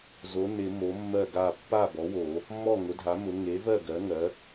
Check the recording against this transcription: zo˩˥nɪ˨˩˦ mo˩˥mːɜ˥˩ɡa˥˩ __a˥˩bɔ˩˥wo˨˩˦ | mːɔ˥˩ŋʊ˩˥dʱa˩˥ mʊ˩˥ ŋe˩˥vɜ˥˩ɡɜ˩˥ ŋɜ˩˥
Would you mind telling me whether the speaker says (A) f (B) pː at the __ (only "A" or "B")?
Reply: B